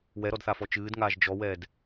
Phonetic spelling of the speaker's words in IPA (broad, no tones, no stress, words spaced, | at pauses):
wɛɾɔdθafɔ t͡ʃɨːdŋaːʒ d͡ʒɔwɛːd